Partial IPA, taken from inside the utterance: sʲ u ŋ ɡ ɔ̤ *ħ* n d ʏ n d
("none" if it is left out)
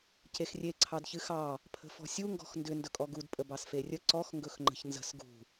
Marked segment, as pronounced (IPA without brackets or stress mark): x